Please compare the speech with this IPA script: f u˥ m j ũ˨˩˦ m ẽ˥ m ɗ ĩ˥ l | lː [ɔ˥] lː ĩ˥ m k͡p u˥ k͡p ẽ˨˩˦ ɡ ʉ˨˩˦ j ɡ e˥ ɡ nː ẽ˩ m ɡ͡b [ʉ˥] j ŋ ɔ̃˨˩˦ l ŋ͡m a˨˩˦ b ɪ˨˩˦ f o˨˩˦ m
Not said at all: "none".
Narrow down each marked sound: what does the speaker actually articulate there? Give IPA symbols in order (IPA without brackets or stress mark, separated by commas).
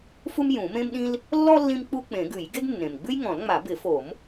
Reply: ɔ˥, ʉ˥